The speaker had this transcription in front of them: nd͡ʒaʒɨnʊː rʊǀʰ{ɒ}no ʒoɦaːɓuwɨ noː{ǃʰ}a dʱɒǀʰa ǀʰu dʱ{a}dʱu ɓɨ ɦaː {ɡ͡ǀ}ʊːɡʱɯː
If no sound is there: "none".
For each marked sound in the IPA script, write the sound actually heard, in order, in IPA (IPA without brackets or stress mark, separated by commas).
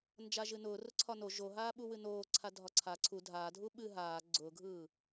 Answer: ɒ, ǀʰ, aː, ɡ͡ǀ